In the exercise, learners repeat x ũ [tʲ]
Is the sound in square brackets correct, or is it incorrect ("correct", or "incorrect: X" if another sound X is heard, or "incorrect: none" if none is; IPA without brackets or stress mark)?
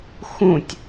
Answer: correct